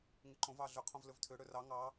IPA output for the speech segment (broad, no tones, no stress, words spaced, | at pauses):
ŋiǃõv ɑɮʏqʰõv lʏvtʰʏ ɽʏrɑ ŋɑ